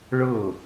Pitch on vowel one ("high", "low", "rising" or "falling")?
falling